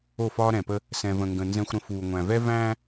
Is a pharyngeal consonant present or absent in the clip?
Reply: absent